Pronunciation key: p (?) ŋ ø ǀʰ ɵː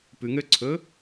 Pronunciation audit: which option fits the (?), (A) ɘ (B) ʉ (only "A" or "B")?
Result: B